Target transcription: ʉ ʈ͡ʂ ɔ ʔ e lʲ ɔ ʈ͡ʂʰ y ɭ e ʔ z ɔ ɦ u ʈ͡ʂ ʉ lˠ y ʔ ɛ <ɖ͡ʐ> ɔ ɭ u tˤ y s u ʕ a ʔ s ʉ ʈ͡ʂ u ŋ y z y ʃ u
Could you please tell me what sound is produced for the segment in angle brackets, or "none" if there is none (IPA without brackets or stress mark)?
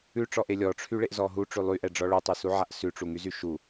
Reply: ɖ͡ʐ